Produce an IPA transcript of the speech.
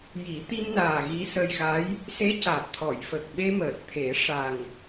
ji˨˩˦t̪i˧mnaː˨˩ ɣi˧˥sə˧jɣa˧˥j | se˧˥caː˨˩p̚t̪ʰɔ˨˩˨jfə˨˩k̚ ɓe˧məː˨˩t̚ t̪ʰe˨˩˦ʂa˨˩ŋ

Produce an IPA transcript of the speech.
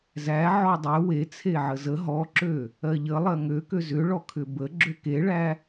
zæ ʕɔdˤø we t͡sʰeʕəzə ɦɔǁø | ɜʎə lˠɜŋøkø zʏɭɔ kʰʏbə ɡ͡ǁøkeɭæ

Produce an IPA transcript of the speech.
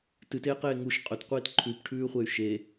tɨteːqeː ŋuʃ qʼɵtqʷiːt ǃʰʉpʈʰʉːχʷey̯ ʃe

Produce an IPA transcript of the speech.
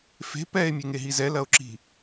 fe̤ pɛe̯ mʲeŋeɦizɛ lɐo̯ǁi̤

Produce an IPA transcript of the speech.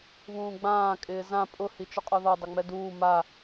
βũːɡ͡bãː kʼɪːzã pʼʊ hit͡ʃʊqʼɔðɔ dˤʊŋ͡mɛduː ma

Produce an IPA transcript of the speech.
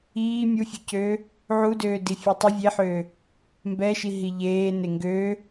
iː mʲufʲøcøː | ʕudøː difʲetˤə vʲeħøː | mbɛʃiɦi ʎeː neŋɡøː

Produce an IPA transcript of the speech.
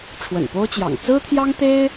ʈ͡ʂʰwə̰˨˩npo˥ʊ̯t͡ɕjɑ̰˨˩ŋ t͡sɹ̩˥t̪ʰjɑ˥ŋt̪e˥ɪ̯

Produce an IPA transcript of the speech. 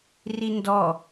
rindɔ

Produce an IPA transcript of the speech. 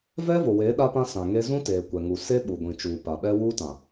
vɛ˦vo˨weː˨˦ ɗa˦pã˦ sã˨ŋe˦ zũ˦teː˨ kʷɛ˨ŋu˨ se˦ɓu˨ɡʷĩ˨t͡ʃuː˨ pa˨ɓɛ˦ wuː˦tã˨

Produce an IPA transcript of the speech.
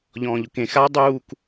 ʎɔ̃ːʎʊkẽ xa dˤuːk

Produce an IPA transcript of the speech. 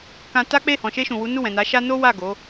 kã˧ta˦k͡pe˦˨ hɔ̃˨ʃe˧ʃũ˨wu˨˦ nu˦˨wɛ̃˨ na˨˦ʃa˦ no˦wa˦˨ ɡo˨˦

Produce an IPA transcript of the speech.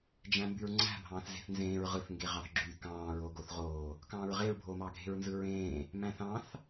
d͡ʒæ̃mbyɹŋ͡ǀæ̤ bʱɑ̃ːθze̤θnzẽːɹ ʁɯθ ŋɡeʁɑθɡ͡ǁy kɑ̃ːɹoɡoθʁoː | kɑ̃ːɹʁeɹbʱoːmɑ ɡʱe̤ɹnzɯɹẽː | mæ̃θɑ̃θ

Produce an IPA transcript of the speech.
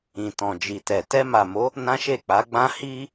ĩ˨tɔ̃˨d͡ʒi˨tɛ˨ tɛ˧ma˨mo˨˦ | nã˦ʃe˦˨k͡pa˨˦ɡ͡bã˦ hi˦

